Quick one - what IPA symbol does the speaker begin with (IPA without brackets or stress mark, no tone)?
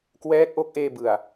k